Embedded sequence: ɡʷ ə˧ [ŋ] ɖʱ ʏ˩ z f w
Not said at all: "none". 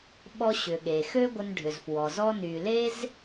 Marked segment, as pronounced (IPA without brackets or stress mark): n